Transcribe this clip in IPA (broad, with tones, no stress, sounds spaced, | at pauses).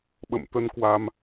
ɓ ə̰˧˨ m t̪ ə˧ n k w a˧ m